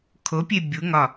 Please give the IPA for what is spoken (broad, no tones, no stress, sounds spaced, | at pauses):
kʰ o pʲ e bʲ u ŋ ɒ